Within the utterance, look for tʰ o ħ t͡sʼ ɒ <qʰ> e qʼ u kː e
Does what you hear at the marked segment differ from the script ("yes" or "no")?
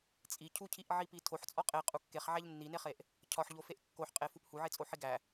yes